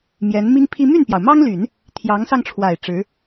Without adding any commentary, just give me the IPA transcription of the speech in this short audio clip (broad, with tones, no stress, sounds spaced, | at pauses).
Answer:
m j ɛ˧˥ n m i˥ ŋ pʰ i˥ m y˥˩ n p j ɑ˩ ʊ̯ m ɑ˥ ŋ l y˨˩˦ n | t̪ʰ j ɑ˧˥ ŋ s ɑ˧ ŋ ʈ͡ʂʰ w a˨˩ ɪ̯ ʈ͡ʂ ɻ̩˧˥